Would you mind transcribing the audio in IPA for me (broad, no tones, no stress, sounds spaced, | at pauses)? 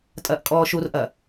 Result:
tʼ ɐː ʔ kʼ ɔː ʃ u r ʔ ɐ